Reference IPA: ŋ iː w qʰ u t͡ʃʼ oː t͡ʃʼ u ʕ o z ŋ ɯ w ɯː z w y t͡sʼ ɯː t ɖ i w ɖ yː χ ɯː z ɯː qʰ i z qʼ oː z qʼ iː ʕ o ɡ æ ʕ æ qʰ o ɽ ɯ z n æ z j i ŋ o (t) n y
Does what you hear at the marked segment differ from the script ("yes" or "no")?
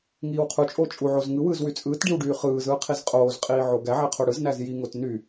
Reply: no